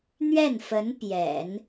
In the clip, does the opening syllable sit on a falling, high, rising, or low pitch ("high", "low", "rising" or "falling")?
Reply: falling